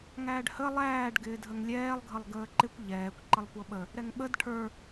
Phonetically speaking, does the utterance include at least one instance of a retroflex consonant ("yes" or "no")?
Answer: yes